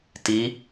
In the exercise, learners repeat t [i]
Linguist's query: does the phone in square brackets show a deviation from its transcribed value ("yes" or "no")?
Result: no